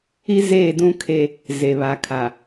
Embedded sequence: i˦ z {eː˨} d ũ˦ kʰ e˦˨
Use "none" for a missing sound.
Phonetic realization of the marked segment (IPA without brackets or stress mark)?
eː˦˨